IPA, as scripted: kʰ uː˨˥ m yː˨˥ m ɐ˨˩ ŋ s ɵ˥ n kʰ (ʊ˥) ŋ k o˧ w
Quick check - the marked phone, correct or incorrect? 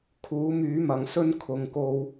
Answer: incorrect